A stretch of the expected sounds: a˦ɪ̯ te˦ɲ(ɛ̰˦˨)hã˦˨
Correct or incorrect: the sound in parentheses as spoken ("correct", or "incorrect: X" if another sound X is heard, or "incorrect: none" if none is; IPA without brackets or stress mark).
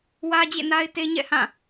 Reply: correct